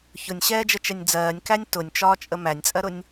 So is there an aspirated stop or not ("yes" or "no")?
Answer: no